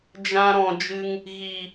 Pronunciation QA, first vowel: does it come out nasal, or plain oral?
nasal